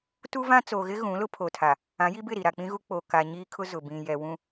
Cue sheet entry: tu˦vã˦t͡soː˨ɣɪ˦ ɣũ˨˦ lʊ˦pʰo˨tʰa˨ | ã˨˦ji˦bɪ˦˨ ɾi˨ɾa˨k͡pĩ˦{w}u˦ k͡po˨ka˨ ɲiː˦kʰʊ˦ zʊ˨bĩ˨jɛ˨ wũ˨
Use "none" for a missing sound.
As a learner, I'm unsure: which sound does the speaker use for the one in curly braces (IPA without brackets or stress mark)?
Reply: ɣ